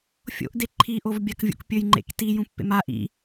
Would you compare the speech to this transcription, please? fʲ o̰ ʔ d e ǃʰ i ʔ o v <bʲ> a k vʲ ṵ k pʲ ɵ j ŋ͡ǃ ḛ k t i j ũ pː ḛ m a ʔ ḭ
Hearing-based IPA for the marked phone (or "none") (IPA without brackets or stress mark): bʲ